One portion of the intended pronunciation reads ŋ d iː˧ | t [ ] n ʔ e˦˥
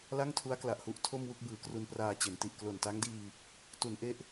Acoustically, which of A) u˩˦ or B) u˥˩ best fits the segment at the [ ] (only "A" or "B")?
A